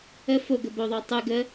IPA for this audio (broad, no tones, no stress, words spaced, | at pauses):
ə foɡə boðˤo tˤʉ ɡə